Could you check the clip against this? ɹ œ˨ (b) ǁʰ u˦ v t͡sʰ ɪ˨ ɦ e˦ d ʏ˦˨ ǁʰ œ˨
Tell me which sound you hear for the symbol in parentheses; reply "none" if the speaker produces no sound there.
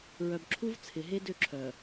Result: b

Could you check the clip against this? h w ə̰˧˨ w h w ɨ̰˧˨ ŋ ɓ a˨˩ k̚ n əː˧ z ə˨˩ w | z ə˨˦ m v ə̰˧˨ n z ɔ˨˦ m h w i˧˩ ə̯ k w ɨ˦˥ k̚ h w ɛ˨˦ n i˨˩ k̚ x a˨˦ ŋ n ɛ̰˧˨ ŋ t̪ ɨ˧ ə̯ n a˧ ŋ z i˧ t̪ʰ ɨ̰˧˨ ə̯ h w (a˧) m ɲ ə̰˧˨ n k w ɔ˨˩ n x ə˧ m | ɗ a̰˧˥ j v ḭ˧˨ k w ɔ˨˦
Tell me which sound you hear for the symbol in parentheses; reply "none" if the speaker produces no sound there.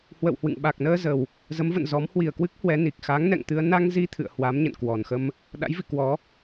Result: a˨˦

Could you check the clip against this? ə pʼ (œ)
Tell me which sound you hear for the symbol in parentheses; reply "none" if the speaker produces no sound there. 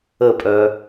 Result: œ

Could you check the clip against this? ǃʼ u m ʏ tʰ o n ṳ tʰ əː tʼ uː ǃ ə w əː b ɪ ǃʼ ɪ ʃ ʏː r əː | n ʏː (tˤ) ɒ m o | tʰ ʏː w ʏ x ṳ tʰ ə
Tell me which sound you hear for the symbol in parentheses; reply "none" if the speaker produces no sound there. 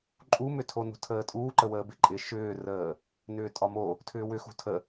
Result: tʼ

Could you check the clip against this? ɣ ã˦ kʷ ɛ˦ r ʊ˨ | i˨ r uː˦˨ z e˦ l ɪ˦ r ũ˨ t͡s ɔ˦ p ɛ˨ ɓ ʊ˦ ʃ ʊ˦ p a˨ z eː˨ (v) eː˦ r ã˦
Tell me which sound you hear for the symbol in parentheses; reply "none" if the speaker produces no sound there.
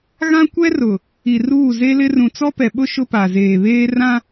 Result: β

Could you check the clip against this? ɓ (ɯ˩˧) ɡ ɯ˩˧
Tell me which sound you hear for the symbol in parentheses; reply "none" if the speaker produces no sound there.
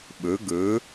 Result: ɯ˩˧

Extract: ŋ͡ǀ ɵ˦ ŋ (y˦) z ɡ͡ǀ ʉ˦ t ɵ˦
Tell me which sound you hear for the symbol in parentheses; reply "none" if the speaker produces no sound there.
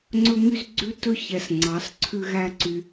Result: y˦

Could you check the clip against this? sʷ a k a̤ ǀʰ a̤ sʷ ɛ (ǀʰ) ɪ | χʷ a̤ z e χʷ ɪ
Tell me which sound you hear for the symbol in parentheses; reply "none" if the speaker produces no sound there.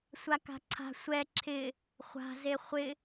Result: ǁʰ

